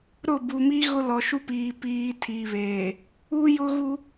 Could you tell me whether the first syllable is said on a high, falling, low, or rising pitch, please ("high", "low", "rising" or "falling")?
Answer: falling